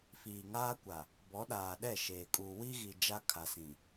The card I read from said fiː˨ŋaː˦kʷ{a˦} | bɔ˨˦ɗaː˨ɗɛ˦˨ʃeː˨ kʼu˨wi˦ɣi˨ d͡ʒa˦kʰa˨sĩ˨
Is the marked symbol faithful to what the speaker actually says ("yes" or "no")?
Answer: no